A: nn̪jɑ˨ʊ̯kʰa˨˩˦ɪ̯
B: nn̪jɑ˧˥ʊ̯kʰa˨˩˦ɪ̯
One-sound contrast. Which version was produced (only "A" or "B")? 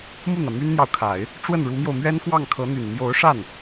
A